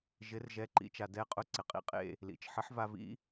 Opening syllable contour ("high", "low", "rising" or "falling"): rising